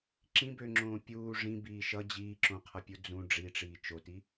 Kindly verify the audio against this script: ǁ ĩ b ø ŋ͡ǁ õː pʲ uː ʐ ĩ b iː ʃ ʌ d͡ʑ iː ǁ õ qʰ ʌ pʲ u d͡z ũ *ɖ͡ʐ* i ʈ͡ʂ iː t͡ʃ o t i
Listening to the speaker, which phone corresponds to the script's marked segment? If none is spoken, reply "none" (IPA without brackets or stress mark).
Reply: ɖ͡ʐ